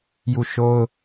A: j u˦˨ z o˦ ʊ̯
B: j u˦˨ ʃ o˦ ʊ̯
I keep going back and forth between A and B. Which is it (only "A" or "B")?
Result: B